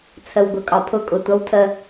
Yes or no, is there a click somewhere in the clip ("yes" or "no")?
no